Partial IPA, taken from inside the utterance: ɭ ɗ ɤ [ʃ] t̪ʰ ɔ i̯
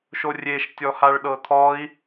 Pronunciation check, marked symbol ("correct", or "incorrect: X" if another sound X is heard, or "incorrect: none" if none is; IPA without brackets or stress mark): incorrect: none